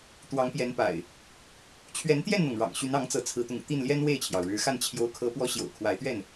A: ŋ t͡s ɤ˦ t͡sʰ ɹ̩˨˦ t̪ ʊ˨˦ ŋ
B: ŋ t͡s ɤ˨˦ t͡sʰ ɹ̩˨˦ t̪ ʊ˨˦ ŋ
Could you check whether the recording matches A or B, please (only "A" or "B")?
B